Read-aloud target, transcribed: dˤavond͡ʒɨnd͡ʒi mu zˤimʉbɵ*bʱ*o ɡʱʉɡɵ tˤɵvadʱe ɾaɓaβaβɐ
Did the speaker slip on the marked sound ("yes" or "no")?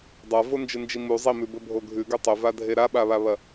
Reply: no